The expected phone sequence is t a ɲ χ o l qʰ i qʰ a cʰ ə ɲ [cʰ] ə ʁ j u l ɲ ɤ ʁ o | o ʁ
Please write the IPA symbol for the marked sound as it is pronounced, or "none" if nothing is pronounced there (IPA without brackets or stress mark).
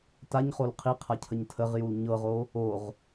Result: tʰ